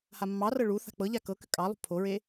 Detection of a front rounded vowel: present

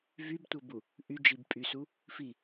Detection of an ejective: present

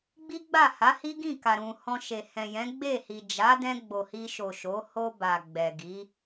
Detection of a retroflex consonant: absent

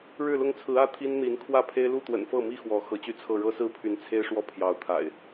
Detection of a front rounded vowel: present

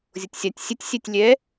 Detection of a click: absent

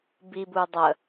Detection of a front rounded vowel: absent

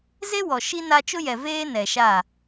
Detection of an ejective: absent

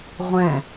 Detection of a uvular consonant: present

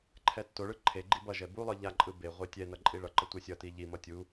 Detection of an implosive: absent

